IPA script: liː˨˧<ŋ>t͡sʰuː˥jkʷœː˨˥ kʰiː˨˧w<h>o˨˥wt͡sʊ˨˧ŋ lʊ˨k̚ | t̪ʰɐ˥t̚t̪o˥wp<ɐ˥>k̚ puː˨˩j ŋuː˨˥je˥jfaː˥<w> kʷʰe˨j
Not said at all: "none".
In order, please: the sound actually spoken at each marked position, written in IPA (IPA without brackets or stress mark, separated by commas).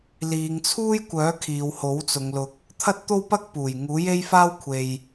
ŋ, h, ɐ˥, w